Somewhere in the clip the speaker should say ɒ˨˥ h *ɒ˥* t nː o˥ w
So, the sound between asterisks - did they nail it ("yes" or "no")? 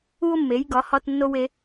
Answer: yes